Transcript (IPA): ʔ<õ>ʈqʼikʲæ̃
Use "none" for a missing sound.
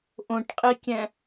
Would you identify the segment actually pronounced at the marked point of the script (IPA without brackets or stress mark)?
õ